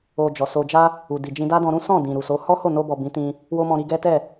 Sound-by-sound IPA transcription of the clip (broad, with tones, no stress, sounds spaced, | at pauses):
o˧ d͡ʒ ɔ˨ s o˧ d͡ʒ a˦ | u˨ d i˨ d͡ʒ ĩ˧ d a˦ d ɔ̃˧ ɾ ũ˦ s ɔ̃˦˨ d ĩ˨ ɾ u˨ s o˨˦ h ɔ˦ h o˦˨ n o˧ b ɔ˨ b ĩ˨˦ t ĩ˧ | w o˦ m ɔ̃˧ ɾ i˧ ɡ ɛ˦ t ɛ˦˨